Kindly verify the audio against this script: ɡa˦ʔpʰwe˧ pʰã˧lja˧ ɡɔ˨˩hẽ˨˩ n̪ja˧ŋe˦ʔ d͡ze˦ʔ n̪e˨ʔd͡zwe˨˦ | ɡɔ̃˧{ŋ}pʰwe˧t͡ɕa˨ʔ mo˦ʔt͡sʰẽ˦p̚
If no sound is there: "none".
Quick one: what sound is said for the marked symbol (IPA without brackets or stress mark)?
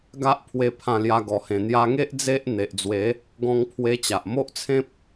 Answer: ŋ